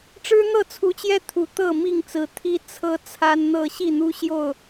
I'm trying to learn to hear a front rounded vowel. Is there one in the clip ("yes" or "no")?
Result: no